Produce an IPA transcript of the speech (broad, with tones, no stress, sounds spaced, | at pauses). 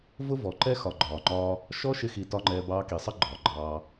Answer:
v ʊ˦ v ɔ˨ ǃ ɛ˦ x ɒ˨ ɡ͡ǃ ɒː˨ ŋ͡ǃ ɒː˧ | ʃ ɔ˦ ʃ ɪ˧ x i˨ t ɒ˦ ŋ͡ǃ ɛː˧ b ɑː˧ k i˨ sˤ ə˦ ɡ͡ǃ ɒː˨ ɡ͡ǃ ɑː˧